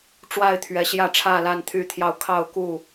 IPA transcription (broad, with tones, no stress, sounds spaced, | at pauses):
ʈ͡ʂ w a˥˨ ɪ̯ t̪ʰ ɥ ɛ˨˦ ɕ j ä˥˨ ʈ͡ʂʰ ä˥˨ l a˥˨ n t̪ʰ y˥˨ t̪ʰ j ɑ˥˨ ʊ̯ kʰ ɑ˥˨ ʊ̯ k u˥˨